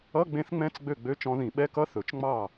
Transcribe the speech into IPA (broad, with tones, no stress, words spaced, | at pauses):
ʌ˧˥˧ɡ͡bẽ˧˥θŋ͡mɛ̃˧˥˧t͡s ɡ͡bø˥˩ɡ͡bø˧˥˧t͡ʃɔ̃˧˥ ðĩ˨˩˦ɓɛ˧˥˧kʌ˧˥˧ θɵ˨˩˦t͡ʃŋ͡mɑ˥˩